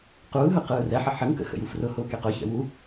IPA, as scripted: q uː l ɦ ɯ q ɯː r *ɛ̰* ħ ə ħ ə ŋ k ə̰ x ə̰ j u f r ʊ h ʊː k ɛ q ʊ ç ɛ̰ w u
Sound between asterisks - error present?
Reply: yes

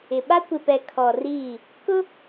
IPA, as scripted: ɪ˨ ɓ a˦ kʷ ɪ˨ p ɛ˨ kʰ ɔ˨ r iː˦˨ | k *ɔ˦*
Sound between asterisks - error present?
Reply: yes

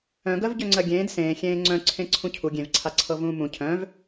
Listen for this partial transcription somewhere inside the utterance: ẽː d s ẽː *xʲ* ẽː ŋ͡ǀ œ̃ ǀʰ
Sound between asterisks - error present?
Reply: no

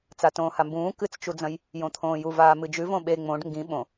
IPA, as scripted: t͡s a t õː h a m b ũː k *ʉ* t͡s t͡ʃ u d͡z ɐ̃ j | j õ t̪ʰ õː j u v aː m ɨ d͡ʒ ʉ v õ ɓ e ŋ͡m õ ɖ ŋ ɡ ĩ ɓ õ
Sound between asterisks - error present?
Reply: yes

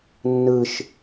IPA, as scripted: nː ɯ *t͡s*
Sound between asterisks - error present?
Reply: yes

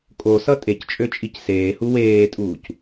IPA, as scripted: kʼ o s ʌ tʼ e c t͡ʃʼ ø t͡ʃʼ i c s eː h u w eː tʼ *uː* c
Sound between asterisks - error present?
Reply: no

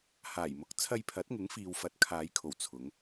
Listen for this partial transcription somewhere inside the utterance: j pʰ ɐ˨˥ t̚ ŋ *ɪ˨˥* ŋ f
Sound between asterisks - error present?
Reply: no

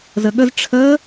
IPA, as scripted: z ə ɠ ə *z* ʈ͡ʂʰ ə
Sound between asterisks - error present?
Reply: no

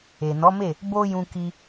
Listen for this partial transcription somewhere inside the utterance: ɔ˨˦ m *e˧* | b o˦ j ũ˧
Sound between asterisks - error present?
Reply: yes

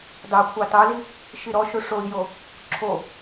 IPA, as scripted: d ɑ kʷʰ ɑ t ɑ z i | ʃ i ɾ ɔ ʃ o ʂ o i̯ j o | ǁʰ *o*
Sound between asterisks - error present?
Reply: no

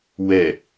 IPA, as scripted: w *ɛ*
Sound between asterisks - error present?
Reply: no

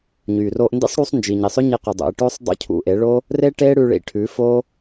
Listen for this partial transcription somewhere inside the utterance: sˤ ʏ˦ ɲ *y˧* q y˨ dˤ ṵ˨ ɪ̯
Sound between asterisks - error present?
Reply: yes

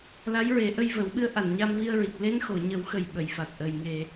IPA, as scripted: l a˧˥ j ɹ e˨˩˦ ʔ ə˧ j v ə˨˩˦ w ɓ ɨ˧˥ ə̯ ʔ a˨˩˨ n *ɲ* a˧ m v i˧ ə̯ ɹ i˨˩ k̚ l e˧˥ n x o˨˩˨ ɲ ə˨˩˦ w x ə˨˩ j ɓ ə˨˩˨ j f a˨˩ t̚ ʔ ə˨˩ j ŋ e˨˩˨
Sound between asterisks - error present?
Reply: no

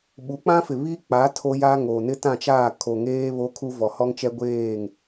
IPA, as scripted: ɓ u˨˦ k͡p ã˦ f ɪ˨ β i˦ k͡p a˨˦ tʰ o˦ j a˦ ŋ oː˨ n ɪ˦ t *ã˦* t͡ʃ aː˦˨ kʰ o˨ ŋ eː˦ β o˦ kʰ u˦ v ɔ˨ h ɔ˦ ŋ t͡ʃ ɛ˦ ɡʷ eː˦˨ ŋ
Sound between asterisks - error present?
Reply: yes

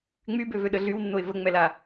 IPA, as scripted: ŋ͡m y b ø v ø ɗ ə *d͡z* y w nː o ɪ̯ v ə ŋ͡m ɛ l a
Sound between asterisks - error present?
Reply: yes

